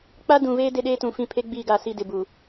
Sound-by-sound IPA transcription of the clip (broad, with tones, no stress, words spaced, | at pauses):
k͡pa˦dũ˨veː˦ de˦ɗeː˦tũ˨ fĩ˦ pʰe˦ɡ͡biː˦˨ɡa˦˨ si˦˨dɪ˨bu˨